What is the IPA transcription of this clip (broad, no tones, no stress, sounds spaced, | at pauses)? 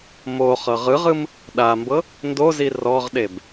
m o χ ɤ ʁ ɯ ʁ ɯ m | ɗ a m b ɤ | n d o z i r ɔ ʁ ɗ e b